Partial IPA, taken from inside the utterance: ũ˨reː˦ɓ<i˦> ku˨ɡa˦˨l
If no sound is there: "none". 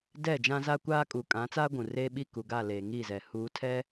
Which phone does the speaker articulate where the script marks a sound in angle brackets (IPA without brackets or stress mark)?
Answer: i˦